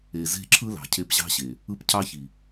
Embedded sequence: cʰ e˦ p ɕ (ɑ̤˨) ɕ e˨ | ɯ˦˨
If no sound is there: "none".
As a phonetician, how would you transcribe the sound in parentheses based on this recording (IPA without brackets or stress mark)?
ɑ̤˦